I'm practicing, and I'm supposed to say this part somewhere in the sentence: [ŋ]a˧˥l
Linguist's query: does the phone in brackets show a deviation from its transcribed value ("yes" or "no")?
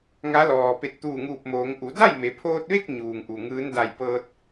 no